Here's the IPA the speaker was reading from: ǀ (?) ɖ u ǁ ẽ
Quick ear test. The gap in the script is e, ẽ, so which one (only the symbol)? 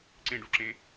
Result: ẽ